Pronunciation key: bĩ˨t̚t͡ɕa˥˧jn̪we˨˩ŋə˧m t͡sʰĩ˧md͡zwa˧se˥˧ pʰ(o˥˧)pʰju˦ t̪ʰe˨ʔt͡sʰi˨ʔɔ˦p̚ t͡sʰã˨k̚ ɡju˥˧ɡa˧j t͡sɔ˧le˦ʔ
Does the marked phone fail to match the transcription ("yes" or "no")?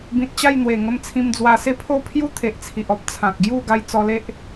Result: no